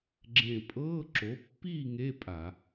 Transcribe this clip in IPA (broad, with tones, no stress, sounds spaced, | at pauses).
ɡ͡ǁ ẽ˧˩ pʼ ɤː˧˥˧ ǁ o˩˥ pː i˥˨ ŋ e˧˥˧ pʼ a˧˩˧